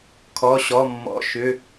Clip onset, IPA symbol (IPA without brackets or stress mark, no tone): kʰ